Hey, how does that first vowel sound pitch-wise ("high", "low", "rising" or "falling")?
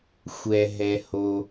low